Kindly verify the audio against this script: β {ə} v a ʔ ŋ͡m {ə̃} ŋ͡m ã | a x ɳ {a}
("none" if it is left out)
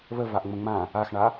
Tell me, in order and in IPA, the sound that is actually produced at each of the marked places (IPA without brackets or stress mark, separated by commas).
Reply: ə, ə̃, a